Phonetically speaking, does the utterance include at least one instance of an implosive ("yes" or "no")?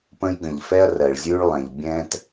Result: no